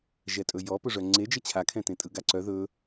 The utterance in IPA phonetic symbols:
ʒɛtʼɵjɔ pɵʐœŋ͡ǀed͡ʒə t͡ɕʰakʰɛ̃tẽtʼɯ ɡaǀœ ðɵ

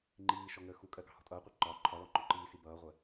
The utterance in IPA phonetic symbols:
ŋ͡ǃiː ʃɔŋəːxukʼɜ ɡɑ̤hɔ̤tʼʌːqʷʌ ǃɒ ǃʰɒlɔ ŋ͡ǃɔǃiːsi bʌːʁʷɜ

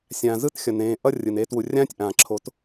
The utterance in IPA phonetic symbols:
sʲãː˨zɯ˦txʲʌ˨n ẽː˨ʔʌ˦ rʲɯ˨ne˦ twu˨rʲãː˦tʲ ʔãː˨ ǁʰo˨˦t

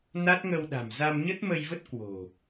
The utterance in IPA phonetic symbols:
na˦˥t̚ŋə˧wɗa̤˨˩m za˧mɲə˦˥t̚mə˧jvə˦˥t̚ kwo̤˨˩

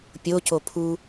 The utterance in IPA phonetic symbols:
pʲoco pʰu

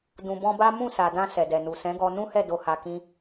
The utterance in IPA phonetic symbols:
dũ˨bɔ̃˧ba˦ mũ˦˨sa˨dã˧ sɛ˨dɛ˨nu˨ sɛ̃˨˦ɡɔ˧ nũ˦hɛ˦˨ do˧ha˧kĩ˦

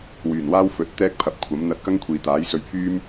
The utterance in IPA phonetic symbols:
wyː˨˩nwaː˥wfɵ˨˥t̚ t̪ɛː˥k̚ pʰɐ˨˥p̚kʷʰɐ˨˥m n̪ɐ˧t̚kɐ˥ŋkʷʰiː˨ t̪aː˨˥jsɵ˧ɥpʰyː˥m

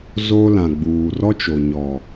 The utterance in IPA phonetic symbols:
zoː˦lã˨ɡ͡buː˨ rɔ˦t͡ʃo˨ ɲɔ˨

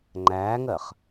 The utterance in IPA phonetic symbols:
ŋ͡ǃæːŋɜχ

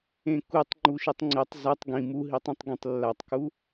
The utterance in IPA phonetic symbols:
ẽkutˤ ŋ͡ǃuʃitˤŋ͡ǀetˤ zatˤ ɡĩ muɦitˤĩtˤ ɡẽtˤlːatˤku

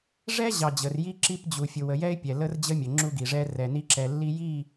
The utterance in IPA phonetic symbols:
ʐɛ˦ʑɑ˨ d͡ʑə˨r ji˦ǁi˦pd͡ʑu˨ fʲʊ˨wə˨jɛ˦ɪ̯pʲɛ˨ lə˦rd͡ʑə˦mʲə˨ ŋ͡ǁu˦ɡi˨ʐɛ˦ rɛ˨ni˦ǁɛ˨ lːi˦ji˦˨

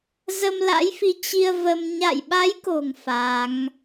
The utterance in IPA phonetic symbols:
zə˧mla̰˧˥jfi˨˦ t͡ɕi˧ə̯ və˧m ɲa̰˧˨jɓa˨˦jko̤˨˩ŋ fa˨˦ŋ

